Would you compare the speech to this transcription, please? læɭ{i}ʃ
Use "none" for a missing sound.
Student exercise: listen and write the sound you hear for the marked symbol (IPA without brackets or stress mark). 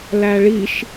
i